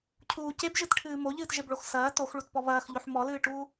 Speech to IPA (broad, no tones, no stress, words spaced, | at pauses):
cʰuːc ebʒɨtʈʰɨː moʎɨːtʒebɭox sɐː toxɭutpɔ βɐːxʎoħ mɔlɨːʈuː